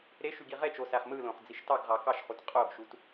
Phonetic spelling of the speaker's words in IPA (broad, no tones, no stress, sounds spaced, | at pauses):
ɾ e ʃ y ɡ i ʁ e t͡ʃ o s æ χ m ɯ l õ χ d͡z i ʃ t ɑ ɡ ʁ ɑ k ɑ ʃ χ u t qʼ o ɡ ʃ u t